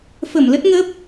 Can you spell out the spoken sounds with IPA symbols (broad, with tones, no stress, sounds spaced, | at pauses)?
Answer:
f ə˧˩ m l ə˦˥ t̚ ŋ ə˦˥ p̚